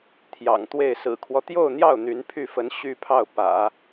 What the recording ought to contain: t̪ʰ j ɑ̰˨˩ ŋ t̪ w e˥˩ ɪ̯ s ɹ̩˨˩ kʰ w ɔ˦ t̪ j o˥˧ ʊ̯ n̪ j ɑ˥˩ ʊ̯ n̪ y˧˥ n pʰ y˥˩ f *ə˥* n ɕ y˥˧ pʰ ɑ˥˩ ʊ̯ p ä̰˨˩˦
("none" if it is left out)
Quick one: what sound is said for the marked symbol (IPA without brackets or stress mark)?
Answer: ə˧˥